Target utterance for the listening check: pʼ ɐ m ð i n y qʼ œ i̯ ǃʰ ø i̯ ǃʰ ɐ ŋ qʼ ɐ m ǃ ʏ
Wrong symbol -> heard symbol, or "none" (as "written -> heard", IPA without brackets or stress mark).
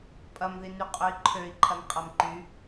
ʏ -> y